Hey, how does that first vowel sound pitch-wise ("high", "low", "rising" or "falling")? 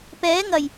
rising